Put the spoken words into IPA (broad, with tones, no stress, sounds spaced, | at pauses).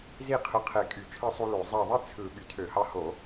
z i˥˩ qʰ ɯ˨˥ qʰ e˧˩˧ kʼ y˧˩˧ t͡ʃʰ ɯ˥˩ sˤ u˦ l o˧˩˧ zˤ ɑ˧˩ ðˤ i˦ t͡sʰ ɯ˧˩˧ ɓ y˧˩˧ tʰ ø˧˩˧ h ɑ˦ h o˧˩˧